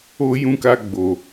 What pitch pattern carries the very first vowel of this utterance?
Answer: high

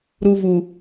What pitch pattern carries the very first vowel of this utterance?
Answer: low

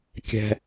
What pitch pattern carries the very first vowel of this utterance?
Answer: high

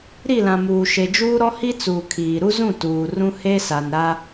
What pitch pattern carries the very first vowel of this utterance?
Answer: falling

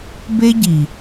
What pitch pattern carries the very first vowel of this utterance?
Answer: high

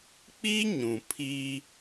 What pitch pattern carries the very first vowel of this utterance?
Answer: high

